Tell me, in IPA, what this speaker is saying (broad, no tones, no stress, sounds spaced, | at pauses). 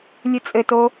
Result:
lʲ ɨ t͡sʼ ɘ t o